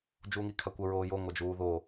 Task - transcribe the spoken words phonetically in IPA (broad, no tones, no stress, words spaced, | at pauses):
d͡ʒuːŋikʰakʷə ɹoːjo ŋʷad͡ʒuːðo